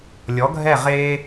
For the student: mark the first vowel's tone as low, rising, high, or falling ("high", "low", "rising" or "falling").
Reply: rising